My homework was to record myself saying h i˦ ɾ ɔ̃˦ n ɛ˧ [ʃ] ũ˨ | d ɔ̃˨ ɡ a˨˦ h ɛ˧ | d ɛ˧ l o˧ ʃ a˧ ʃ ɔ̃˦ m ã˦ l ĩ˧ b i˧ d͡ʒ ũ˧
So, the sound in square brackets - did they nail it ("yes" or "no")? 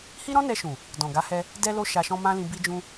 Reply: yes